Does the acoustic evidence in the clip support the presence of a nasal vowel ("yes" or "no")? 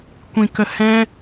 yes